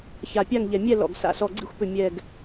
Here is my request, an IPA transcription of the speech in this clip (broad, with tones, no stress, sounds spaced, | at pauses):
ç a˨˩ pʲ a˦˨ ŋ ʎ ɛ˨˩ mʲ ɛ˦˨ l ɔ̰˨˩ ɡ s a̰˨˩ s ɔ˨˩ ɡ͡ǀ ḭ˦˨ xʷ p ʏ˨˩ mʲ ɛ˨˩ ɡ